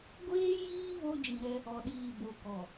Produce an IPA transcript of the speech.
ɡʷ eː˦ j iː˦ β o˦ d͡ʒ ĩ˨ ɾ ɛ˦ | ɔ˨ ɗ iː˨ b o˨ k ɔ˨

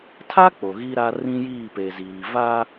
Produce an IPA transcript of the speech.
tʰ a˦ k͡p o˨ ɣ i˦ ɾ a˦ r ĩ˦ j iː˦˨ p e˨ z iː˨ v a˦

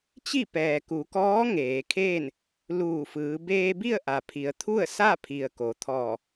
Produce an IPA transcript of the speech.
t͡ɕ i˥˨ p ɛː˩ k u˩˧ k ɔː˧˥ ŋ eː˩˧ kʰ eː˥˨ n | l uː˧˩ f ɯː˩˧ b eː˧ b i˥˨ ə̯ ʔ a˩ pʰ i˩˧ ə̯ t̪ʰ u˥˨ ə̯ s a˥˨ pʰ i˩ ə̯ k o˩˧ t̪ʰ ɔː˧˩

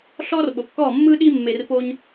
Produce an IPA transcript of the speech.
ɬ ɔː˦ r ɓ o˨ kː ɔː˦˨ mː ɯ˦ ɗ iː˦ mː e˧ r p o˦ ɲ

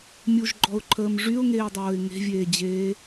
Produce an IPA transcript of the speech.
mʲ u ʒ ɡ͡ǃ ɔ ʊ̯ ǃʰ əː m ʐ y ʊ̯ ŋ eː dˤ oː ɪ̯ ŋ e̤ vʲ eː d͡ʑ eː

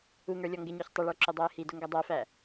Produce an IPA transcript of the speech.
u ŋ ə˞ lʲ ɔ ŋ ɡ ɪ ɲ ɔ ç tˤ ə ɭ ə˞ ǁ ʊ dˤ æ ɪ̯ h i d ʊ ŋ ɡ ʌ dˤ æ f æ

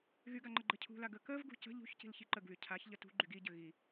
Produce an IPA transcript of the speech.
ɣ y ɡ a ŋ͡ǃ ə ɡ͡ǃ ə cʰ ṳ l a ɡ ə k ə v ɡ ṳ c ə̤ ʎ ṳ ç c i̤ l ç i ǃ ə ɡ β y cʰ a ç ʎ ə t ṳ ɡ͡ǃ y ɡ i ɟ ə ɣ i

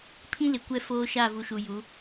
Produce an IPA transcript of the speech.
pʰ ĩ˦ l ɪ˨ kʷ ɛ˦˨ f oː˦ ʃ a˦˨ v u˨ ʃ u˨ j u˨˦

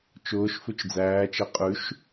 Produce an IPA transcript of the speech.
t͡ʃ ʊː ʃ f ʉ t͡ʃ d͡z æː t͡ʃ ɛ qʼ ʉ ʃ

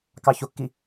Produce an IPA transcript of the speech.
k ɑ ç o kː i

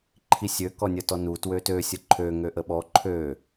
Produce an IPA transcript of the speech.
ǃʰ i sʲ ø k ɔ nʲ ə t ɔ n u t w ø t ø sʲ ə ǃʰ ø ŋ ø ʔ ə ɓ ɔ ǃʰ ø

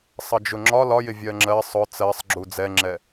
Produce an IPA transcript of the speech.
sˤ ʌ d͡ʒ ʊ ŋ͡ǁ ɒ l ɒ j ɪ vʲ ɜ ŋ͡ǁ ɜ sˤ ʊ t͡s ɜ sˤ ɡ͡ǁ u d͡z ɛ ŋ͡ǁ ɛ

